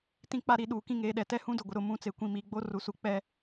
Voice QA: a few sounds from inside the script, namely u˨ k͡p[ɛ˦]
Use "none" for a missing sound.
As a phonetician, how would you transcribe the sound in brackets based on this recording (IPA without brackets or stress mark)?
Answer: ɛ˦